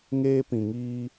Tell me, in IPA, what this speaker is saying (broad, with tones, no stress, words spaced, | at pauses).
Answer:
ŋeː˦pĩ˨ŋiː˦